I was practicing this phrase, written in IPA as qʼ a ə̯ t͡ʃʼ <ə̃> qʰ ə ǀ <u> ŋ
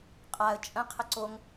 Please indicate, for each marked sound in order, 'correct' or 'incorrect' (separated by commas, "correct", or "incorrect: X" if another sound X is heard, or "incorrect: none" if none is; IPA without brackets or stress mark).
correct, incorrect: o